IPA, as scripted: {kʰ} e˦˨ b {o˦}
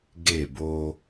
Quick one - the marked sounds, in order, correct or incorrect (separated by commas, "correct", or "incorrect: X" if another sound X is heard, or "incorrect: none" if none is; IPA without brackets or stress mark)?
incorrect: ɡ, correct